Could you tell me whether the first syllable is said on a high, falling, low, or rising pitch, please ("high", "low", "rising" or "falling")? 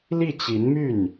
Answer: falling